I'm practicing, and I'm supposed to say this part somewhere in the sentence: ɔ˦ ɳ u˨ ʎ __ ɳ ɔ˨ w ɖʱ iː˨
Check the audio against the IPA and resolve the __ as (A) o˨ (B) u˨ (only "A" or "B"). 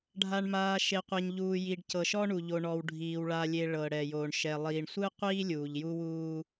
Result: A